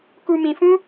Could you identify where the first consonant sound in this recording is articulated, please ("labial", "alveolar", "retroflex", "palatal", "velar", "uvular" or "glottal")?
velar